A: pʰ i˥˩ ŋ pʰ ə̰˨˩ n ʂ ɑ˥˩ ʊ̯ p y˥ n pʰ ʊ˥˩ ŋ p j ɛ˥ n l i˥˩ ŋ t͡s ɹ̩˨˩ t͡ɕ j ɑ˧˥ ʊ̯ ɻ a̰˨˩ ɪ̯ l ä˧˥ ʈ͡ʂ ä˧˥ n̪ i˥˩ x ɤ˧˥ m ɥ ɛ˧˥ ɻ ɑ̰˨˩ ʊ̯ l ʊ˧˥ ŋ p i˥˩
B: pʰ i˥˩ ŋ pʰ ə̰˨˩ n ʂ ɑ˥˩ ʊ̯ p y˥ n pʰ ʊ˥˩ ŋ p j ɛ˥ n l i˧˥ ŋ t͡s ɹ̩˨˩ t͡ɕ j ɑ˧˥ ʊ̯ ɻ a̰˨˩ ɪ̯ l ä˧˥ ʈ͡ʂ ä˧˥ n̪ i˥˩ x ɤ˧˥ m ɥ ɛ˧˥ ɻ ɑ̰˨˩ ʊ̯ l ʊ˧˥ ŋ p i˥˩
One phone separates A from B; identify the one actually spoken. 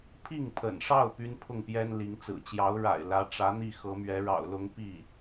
B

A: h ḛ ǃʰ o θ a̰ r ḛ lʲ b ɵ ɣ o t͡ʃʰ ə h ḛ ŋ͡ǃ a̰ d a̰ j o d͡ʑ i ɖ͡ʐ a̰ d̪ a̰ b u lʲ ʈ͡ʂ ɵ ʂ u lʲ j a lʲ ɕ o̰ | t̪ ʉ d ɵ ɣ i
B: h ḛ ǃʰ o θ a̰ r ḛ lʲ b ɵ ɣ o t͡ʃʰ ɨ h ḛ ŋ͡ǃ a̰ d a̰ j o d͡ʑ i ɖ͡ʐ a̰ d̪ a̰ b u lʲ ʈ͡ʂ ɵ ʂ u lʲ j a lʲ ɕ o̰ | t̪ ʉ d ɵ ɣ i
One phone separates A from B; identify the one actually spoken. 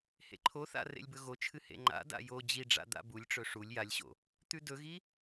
B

